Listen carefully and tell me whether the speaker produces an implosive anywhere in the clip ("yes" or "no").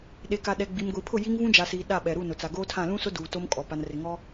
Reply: yes